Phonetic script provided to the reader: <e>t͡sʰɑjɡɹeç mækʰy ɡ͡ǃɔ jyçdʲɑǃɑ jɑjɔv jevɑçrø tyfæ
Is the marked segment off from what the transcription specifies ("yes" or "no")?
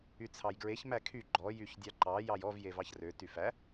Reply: yes